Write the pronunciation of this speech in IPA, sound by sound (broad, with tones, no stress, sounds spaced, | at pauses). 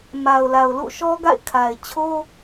m a˨ ʊ̯ l a˨ ʊ̯ l ṵ˦˨ ʃ ɔ˦ ɡ a̰˦˨ ɪ̯ kʰ a˨ ɪ̯ t͡ɕʰ o˦